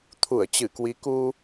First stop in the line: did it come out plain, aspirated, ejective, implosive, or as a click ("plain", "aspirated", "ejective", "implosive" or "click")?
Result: aspirated